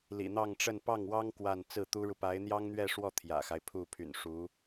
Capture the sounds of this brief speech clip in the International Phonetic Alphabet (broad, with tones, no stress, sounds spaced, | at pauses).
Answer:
l ḭ˨˩ n̪ ɑ˥˧ ŋ ʈ͡ʂ ə˥˧ n p ɑ˥˩ ŋ w ɑ˥ ŋ k w a˥˧ n t͡s ɹ̩˥˩ t̪ u˥ ɻ u˨ p a˧˥ ɪ̯ n̪ j ɑ˥ ŋ n̪ ɥ ɛ˥˧ ʂ w ɔ˥˩ t̪ʰ j ä̰˨˩ x a˦ ɪ̯ pʰ u˥˩ pʰ y̰˨˩ n ʂ u˧˥